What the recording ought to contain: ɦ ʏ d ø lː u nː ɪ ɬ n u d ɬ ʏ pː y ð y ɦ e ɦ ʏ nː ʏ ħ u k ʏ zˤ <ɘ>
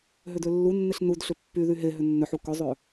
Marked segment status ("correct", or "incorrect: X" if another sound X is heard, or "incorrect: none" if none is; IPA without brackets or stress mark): incorrect: ø